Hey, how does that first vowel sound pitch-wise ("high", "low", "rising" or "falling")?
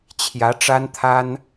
rising